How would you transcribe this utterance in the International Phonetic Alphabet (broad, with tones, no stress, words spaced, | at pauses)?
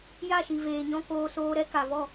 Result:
ja˦˨ʃi˨veː˨ɲɔ̃˧ koː˧soː˧ɾɛ˦ ka˨vɔ˦˨